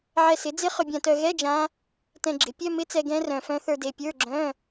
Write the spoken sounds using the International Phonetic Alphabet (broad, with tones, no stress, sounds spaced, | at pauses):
ʕ ɛ˧ s ɪ˩˥ d͡z ɪ˦˥ χ ʏ˧ bʲ ã˧ t œ˧ ɣ ɛ˧˥˧ d͡ʒ ã˦˥ | t ɛ̃˧ ɡ͡ǁ ɪ˩˥ pʲ œ˧˥˧ m ɪ˧˥˧ t͡s ɛ˧ ɡ ɛ̃˦˥ r œ̃˧ f œ̃˦˥ θ ə˞˧ d e˧ pʲ ə˞˧˥˧ ɡ͡ǁ œ̃˧˥˧